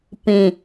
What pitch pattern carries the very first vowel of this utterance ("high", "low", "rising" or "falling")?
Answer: low